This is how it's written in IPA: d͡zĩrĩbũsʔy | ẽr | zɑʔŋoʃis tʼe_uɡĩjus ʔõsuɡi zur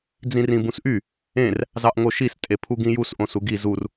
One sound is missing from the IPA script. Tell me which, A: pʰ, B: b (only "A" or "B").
A